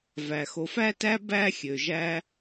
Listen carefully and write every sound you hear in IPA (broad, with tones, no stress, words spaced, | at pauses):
væ˩xo˨ fæ˥tæ˥ bæ˥xʲø˩ʒæ˦